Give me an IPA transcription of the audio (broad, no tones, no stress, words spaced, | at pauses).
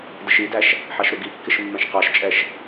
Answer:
dəʃidæʃ | ħɑʃɾʊɡikːɪʃ mːɛ̃ʃqɑʃt͡ʃʼɛʃ